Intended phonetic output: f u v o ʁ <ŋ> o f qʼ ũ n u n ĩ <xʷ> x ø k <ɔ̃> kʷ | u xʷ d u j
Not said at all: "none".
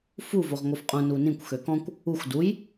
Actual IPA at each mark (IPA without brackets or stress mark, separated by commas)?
ŋ, kʷ, ɔ̃